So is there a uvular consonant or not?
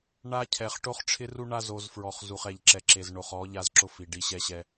yes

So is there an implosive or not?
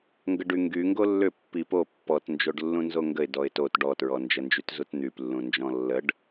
no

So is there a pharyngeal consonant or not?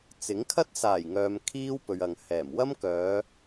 no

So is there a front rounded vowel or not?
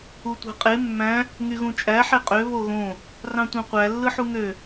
yes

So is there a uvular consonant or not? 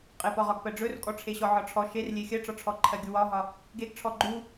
yes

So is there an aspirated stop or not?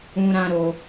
no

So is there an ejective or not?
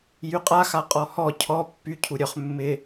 yes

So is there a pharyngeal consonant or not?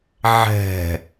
yes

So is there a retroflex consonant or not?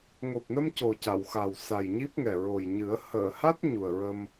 no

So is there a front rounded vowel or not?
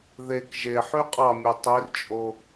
yes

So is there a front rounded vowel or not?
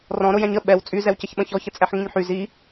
yes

